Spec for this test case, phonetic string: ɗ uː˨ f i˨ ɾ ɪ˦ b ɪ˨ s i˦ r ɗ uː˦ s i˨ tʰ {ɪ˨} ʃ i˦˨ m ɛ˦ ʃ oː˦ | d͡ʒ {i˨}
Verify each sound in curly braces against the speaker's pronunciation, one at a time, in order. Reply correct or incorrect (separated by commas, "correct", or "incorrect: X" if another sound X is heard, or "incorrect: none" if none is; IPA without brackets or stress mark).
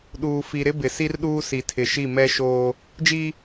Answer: correct, incorrect: i˦